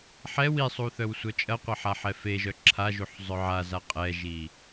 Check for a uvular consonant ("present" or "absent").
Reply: present